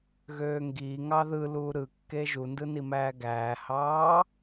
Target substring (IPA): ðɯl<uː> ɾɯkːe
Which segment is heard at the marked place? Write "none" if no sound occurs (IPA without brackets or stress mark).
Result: uː